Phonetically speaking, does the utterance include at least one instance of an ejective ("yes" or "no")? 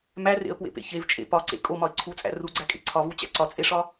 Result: yes